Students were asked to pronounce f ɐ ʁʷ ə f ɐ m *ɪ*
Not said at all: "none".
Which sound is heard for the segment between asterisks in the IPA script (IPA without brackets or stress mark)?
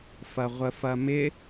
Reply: ɪ